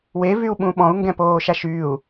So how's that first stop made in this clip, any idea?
implosive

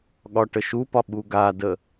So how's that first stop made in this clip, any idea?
implosive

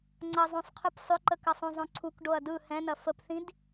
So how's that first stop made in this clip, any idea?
click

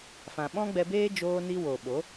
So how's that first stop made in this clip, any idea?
implosive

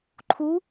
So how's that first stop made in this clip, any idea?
click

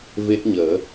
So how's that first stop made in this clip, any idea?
plain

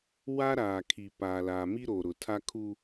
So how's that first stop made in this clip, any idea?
aspirated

